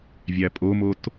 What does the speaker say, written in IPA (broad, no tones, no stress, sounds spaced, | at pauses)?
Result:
vʲ æ pʼ o m o t